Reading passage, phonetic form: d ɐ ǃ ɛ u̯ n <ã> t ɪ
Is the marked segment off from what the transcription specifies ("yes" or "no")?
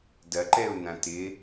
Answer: no